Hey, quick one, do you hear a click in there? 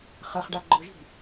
yes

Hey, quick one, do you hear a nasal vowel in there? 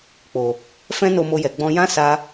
yes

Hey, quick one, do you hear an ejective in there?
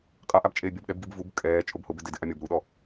yes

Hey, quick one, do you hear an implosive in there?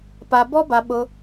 yes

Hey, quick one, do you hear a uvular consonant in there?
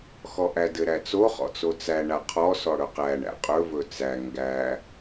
yes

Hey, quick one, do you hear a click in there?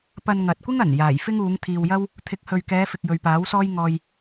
no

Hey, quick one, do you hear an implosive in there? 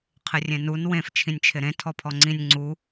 no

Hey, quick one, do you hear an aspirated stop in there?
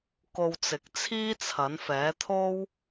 yes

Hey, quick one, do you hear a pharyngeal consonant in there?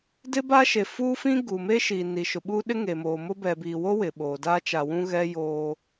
no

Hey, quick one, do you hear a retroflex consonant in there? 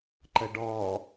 yes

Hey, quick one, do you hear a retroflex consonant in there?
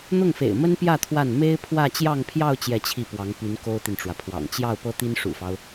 yes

